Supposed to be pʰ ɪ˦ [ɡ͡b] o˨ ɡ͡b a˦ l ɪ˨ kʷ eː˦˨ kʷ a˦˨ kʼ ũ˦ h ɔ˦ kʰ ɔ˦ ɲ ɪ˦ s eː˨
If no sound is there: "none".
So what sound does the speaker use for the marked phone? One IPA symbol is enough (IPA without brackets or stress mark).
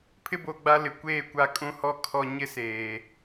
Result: b